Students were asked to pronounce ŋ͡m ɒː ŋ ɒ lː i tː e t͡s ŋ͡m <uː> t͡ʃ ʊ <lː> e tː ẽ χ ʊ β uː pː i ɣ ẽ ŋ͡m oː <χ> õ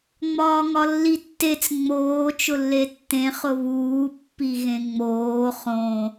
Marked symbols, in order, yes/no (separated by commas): no, yes, yes